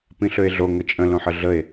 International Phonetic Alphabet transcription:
p ĩ ɬ ø e̯ ɮ o ŋ ə t͡ʃʼ ə̃ l õ ħ ə ɮ ə e̯

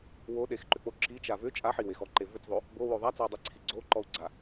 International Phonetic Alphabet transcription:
w o ɗ e x ǃ ʏ k͡p o ǁ i t͡ʃ a v ʏ t͡ʃʼ a ħ i w e x ɔ ǃ e v ʏ t͡s ðˤ o | b o w o ðˤ a t͡s ɔ u̯ dˤ e ǀʰ i ɡ͡ǀ o ǃ ɔ u̯ ɡ͡ǀ a

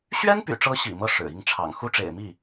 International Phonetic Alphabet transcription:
ɕ ɥ ɛ˥ n p y̰˨˩ ʈ͡ʂ ɤ˧˥ ɕ ḭ˨˩ m ɤ˥˩ ʂ ɻ̩˨˩ i˥˩ ŋ ʈ͡ʂʰ ɑ̰˨˩ ŋ x u˥ ʈ͡ʂ ḛ˨˩ ɪ̯ m i˥˩

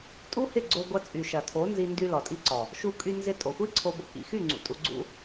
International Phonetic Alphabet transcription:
tʼ u˦ h ɪ˦˨ ɡ͡ǀ o˧ ɡʷ ɐ˧ t͡sʼ y˨ ʃ ɐ˨ tʰ o˨˦ n z i˧ n d y˧ l ɔ˨ tʼ i˧ ǀ ɔ˨ | ʃ u˧ kʼ y˧ n z ɪ˧ tʼ o˨ xʷ i˦ ǀʰ o˧ b o˧ k ḭ˨ x y˦˨ ŋ͡ǀ ṵ˨ tʼ u˧ ɡ͡ǀ ṵ˦

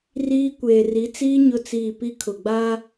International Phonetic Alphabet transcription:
r iː˦ kʷ eː˨ r i˨˦ t͡s iː˦ ɲ ʊ˦ t͡s iː˦˨ p i˦ kʰ ʊ˨ ɡ͡b aː˦

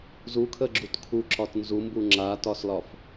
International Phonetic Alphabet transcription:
z u kʰ ə ɡ͡ǁ u t kʰ u ǁ ɒ t n z u m b u ŋ͡ǁ a t ɒ s l ɒ f

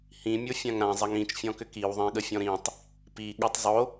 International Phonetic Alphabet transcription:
h ĩ mʲ o fʲ ã ŋ ɾ ã zˤ ɐ ŋ ĩ t͡ʃ fʲ ɔ̃ k ʏ k i w ðˤ ẽ ɠ ə fʲ ɔ̃ ɾ ĩ tˤ | p i ɠ o tˤ zˤ o

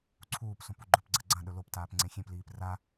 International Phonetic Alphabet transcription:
ǀʰ uː p s õ p u ɡ͡ǃ ɵ p ɡ͡ǀ ɐ ɡ͡ǀ ɐ̃ ɗ ɵ l o p t aː p ŋ͡ǀ ẽ xʲ ẽ p l iː p r a

